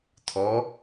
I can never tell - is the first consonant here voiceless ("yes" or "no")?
yes